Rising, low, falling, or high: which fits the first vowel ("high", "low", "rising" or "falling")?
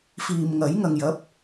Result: low